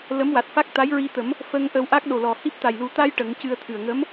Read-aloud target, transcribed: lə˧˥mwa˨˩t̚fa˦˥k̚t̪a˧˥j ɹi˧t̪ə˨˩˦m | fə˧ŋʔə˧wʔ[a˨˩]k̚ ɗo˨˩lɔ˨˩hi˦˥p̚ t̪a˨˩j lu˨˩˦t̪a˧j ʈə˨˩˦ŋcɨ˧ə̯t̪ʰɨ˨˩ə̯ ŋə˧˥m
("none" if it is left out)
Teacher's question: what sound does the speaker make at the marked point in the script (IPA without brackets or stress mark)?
a˦˥